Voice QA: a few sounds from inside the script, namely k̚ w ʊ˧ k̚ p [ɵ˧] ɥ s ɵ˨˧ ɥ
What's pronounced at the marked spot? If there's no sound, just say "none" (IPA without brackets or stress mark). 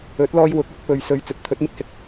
ɵ˨